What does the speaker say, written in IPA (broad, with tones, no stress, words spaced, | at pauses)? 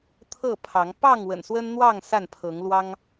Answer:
t̪ʰɤ˥˨pʰɑ˨˦ŋ pɑ˥˨ŋ wə̰˨˩nswə˦nn̪wɑ˥˨ŋ sa˥˨npʰɤ˨˦ŋlwɑ˦ŋ